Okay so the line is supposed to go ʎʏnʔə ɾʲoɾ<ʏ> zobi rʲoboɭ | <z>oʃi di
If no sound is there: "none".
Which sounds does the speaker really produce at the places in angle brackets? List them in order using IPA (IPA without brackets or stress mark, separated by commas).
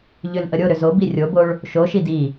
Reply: ʏ, ʃ